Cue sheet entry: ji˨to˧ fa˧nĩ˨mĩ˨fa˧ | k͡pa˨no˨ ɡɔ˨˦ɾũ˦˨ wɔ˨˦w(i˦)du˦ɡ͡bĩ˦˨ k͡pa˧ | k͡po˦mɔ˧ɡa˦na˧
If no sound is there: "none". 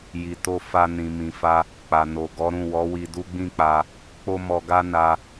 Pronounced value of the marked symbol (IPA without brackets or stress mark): i˧